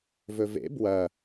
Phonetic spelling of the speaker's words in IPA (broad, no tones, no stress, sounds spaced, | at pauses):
v ɵ v ḛ b w ɐ